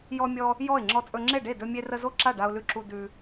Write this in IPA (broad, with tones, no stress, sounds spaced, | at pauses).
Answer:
j ɔ˦ mʲ ɔ˦ | j ɔ˥˨ ɪ̯ ŋ͡ǁ ɔ˦ t͡sʼ ɵ˦ ŋ͡ǁ e˥˨ ɖ e˥˨ d ɵ˦ mʲ e˦ r ə˦ z o˥˨ ǁ a˥˨ ɖ a˦ ʊ̯ l ʉ˦ ǁ u˦ d ʉ˦